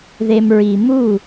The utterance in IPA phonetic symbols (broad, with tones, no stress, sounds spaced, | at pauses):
ð e˨ m ɹ i˨ m u˦˨